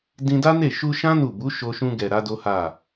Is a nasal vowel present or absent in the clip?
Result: present